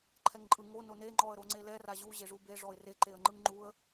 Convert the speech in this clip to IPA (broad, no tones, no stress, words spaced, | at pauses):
ǃʰɛŋǃʼɯ ŋo none ŋ͡ǃɔə̯ɾoŋ͡ǀelɛ raʑu ʑeʐube ʐɔɪ̯re ǃeə̯ŋ͡ǃɯŋŋ͡ǃuə̯